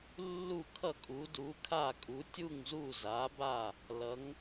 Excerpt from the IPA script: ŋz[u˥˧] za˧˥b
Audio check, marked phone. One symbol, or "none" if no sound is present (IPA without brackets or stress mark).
u˥˧